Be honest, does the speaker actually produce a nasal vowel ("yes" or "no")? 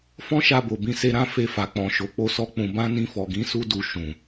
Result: yes